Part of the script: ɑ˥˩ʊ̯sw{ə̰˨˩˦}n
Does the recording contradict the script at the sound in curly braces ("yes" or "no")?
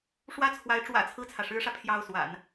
yes